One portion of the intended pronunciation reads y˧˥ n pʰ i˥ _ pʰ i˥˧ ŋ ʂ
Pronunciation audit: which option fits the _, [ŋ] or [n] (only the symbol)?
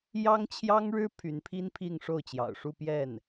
n